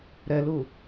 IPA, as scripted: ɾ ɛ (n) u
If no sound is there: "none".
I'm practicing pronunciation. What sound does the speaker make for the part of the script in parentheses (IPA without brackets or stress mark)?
l